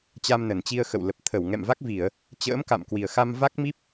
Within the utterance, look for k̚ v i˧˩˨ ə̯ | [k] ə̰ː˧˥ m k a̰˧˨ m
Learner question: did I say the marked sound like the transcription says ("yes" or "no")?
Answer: no